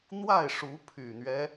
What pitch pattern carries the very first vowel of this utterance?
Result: falling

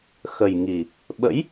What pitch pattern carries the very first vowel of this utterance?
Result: low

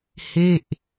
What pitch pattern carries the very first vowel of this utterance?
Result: falling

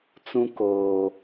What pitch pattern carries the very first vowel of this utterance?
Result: high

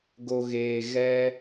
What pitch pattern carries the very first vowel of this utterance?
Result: low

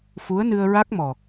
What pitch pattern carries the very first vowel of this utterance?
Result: rising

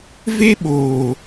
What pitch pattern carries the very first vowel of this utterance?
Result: high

